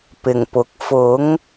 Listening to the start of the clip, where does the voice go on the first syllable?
low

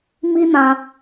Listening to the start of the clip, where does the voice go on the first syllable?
high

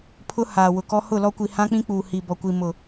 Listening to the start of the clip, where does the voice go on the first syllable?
high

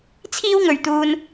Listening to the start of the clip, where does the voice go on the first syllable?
high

